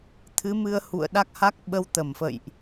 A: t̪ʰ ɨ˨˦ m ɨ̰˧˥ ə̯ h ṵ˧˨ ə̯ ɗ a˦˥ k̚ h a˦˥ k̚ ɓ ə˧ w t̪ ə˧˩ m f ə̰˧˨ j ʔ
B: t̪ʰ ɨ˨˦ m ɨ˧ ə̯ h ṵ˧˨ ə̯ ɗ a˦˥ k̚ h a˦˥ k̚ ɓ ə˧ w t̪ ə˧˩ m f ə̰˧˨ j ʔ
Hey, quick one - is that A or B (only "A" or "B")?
B